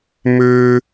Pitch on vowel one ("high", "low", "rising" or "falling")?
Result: high